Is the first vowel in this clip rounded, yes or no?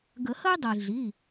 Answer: no